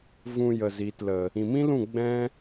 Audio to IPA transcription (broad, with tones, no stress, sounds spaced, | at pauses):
v ũ˧ j ə˨ z i˨ t l ə˨ | ĩ˨ m ĩ˦ l ũ˦˨ ɡ͡b ɛ̃˦